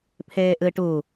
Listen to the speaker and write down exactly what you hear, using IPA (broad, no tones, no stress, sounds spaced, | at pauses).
pʰ ɛː ʔ əː ʈ o